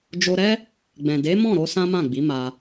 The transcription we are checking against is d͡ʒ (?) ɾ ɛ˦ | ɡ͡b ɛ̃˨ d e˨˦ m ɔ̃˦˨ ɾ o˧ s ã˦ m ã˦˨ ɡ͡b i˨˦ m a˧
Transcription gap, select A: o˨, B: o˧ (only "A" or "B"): B